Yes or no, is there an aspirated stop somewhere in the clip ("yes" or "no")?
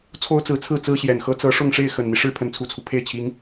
yes